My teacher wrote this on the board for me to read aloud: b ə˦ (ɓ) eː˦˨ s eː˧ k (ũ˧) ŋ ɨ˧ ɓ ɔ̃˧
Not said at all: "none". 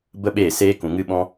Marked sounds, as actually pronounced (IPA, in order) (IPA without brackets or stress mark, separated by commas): ɓ, ũ˨